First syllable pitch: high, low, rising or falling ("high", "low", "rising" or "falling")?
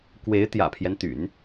rising